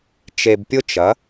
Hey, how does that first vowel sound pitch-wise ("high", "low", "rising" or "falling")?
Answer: low